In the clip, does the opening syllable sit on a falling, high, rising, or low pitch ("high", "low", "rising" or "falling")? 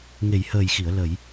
low